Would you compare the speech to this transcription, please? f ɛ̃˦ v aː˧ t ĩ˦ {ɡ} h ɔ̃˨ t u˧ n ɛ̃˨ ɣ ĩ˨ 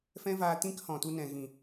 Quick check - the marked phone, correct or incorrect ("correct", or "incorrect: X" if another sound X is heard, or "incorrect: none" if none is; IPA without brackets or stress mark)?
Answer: incorrect: k